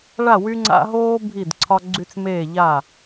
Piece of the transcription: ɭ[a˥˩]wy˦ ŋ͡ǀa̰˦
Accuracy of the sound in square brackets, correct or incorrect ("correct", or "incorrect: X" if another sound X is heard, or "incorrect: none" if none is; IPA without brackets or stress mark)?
correct